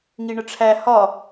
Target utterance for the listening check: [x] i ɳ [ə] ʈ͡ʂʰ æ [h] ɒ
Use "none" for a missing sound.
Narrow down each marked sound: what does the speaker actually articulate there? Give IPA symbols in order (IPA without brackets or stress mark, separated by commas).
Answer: ŋ, ə, h